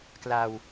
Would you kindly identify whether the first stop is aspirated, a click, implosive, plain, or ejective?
plain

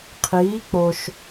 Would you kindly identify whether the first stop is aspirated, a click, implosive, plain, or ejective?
aspirated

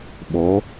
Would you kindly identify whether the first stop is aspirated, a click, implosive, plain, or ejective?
implosive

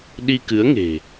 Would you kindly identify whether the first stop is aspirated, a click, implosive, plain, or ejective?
implosive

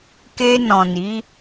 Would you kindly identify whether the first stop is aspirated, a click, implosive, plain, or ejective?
plain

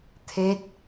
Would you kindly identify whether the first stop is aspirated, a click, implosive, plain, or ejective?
aspirated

